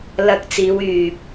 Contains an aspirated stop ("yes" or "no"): no